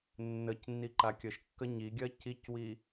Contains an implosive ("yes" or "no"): no